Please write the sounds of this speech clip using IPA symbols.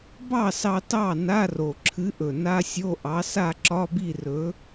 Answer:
b ɑ˥˨ s ɑ˧ t ɑ˥˨ n a˧˥˧ r o˨˩ ǁʰ ɨ˨˥ ʔ ɵ˨˩ n a˧˥˧ sʲ o˧˥˧ ʔ ɑ˨˥ s a˥˨ ǁ ɒ˧˥˧ b i˥˨ r ɵ˨˥

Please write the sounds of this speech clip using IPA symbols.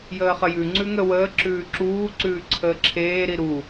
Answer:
j əː χ ə j ʉ ŋ͡ǀ ʉ ŋ ə w əː ǁ ʉː ǁ uː ǀ ʉː ǀʰ əː ǁʰ eː ɾ i ɾ u

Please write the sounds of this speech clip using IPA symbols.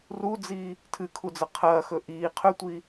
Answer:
r u d͡z iː | tʰ ɨ kʰ u d͡z ɐ qʰ ɐː x ɵ ʔ iː qʰ ɵ tʷ iː

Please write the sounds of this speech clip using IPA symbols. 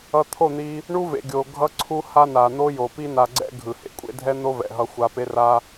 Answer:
ʌ˧ t̪ʰ o˦˨ n̪ i˧ | ɳ u˦ v ḛ˨ ɡʲ o˨ ɡʱ ʌ˧ ǀʰ u˧ h a˦ n a˨ n̪ o˦ j o˨ p i˦ n a˧ ɡ͡ǀ ɛ̰˦ ɡʱ ɯ˨ h ḛ˨ kʷʼ ḛ˦ dʱ ɛ˦ n̪ o˦ v ɛ̰˨ ɦ ʌ˦ xʷ a˧ p e˦ r a˦

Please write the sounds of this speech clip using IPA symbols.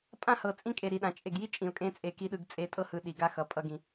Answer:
pʼ ã˦ h ɤ˨ t͡sʼ ĩ˦ kʼ e˨ ɾ i˨ ɗ ã˨ t͡ʃʼ e˨ ɡ j i˦ t͡ʃʼ ĩ˨ ʊ̯ kʼ ẽ˦ t͡sʼ e˦ k i˦ ɗ ɯ˦ ɡ t͡sʼ e˨˦ tʼ ɤ˦ h ɯ˨ ɗ i˨ ɡ a˦ x ʌ˨ pʼ ʌ˨ ɡ ĩ˨

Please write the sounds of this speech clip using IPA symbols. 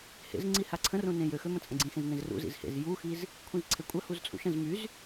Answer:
h ḛ z ŋ͡ǀ i h a ǀʰ ə̃ r ũ n ẽ j ø x ø m ə̃ t͡sʼ ɐ̃ ɡ͡ǀ ĩ x ẽ z n ẽ z r ṵ z ḭ z h ḛ z j u x i z | kʷʰ ĩ z ǀʰ e kʷʼ ɐ h u z t͡sʼ ṵ ʃ ɐ̃ z m y z

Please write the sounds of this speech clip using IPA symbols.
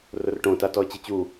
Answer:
r ʊ r ʈ õ t a t ɔ ə̯ t͡ɕ ɪ t͡ɕ u

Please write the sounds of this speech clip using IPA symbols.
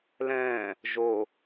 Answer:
l ɛ̃ː | ʒ o

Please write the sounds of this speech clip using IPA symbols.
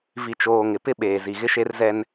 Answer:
v i˨ t͡ʃ oː˨ ŋ ɪ˨ p ɪ˦ ɓ eː˨ z i˨ ɣ ɪ˦ ʃ e˦ r z ɛ˦ n

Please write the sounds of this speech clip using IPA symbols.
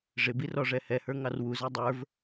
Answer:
ʐ ɪ b i r ɔ ʐ ɛ h ɛ h ə˞ ŋ ɑ r w u z æ dˤ ə˞ v

